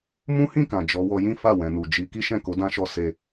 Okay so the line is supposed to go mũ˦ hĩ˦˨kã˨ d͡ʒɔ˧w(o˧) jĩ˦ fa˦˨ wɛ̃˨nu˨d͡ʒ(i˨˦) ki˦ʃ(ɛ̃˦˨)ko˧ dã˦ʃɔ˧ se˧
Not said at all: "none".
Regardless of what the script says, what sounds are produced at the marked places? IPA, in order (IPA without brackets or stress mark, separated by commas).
ɔ˧, i˨˦, ɛ̃˦˨